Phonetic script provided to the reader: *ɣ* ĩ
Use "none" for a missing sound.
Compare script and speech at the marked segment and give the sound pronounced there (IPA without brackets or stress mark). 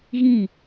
ɣ